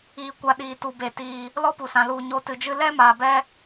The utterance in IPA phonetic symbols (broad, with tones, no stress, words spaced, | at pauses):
iː˧kʷa˧ ɗiː˨ tu˨be˨ tiː˨ | lɔ˦pu˨sã˨ lu˨ ɲo˧tɨ˨d͡ʒɨ˦ lɛ˦maː˨bɛ˧